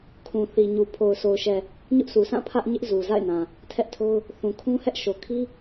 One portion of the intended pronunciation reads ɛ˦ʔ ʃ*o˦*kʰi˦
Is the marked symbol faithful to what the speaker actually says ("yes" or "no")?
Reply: no